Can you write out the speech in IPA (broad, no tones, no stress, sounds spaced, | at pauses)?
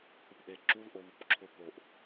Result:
θ ʊ p ʔ e ǁ u l ʔ o β u p ǁʰ ʊ p o ʔ